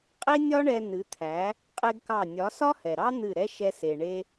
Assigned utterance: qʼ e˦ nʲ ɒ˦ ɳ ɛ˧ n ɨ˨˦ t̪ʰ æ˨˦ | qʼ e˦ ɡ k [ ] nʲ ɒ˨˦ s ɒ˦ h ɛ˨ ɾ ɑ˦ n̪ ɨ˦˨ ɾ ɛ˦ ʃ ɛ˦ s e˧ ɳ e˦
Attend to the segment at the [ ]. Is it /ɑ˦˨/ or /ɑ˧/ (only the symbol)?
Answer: ɑ˦˨